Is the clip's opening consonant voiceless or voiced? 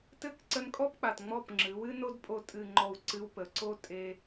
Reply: voiceless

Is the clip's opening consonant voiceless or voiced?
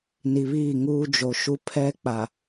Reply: voiced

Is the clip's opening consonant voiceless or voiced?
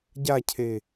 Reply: voiced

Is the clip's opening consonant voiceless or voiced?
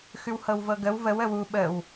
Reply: voiceless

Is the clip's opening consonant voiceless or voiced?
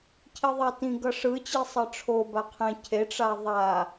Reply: voiceless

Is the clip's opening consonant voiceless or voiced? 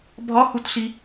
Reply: voiced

